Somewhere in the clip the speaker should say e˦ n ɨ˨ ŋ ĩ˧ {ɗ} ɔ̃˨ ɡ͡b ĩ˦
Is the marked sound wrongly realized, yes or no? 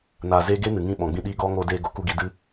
yes